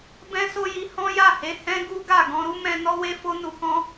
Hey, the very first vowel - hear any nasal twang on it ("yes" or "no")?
yes